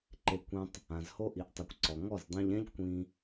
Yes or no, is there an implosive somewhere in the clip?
no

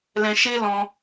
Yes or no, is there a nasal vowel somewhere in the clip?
yes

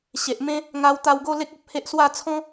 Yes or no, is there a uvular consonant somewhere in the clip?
no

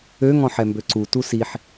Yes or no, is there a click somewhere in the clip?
yes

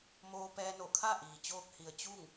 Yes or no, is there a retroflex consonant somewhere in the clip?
no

